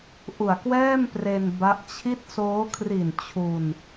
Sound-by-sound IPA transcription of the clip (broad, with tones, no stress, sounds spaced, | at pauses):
ʔ u˨˩ a̯ k w ɛː˥˩ m p r e˧ n b a˦˥ ʔ t͡ɕʰ i˥˩ t̚ s oː˦˥ kʰ r i˨˩ n t͡ɕʰ u˧ n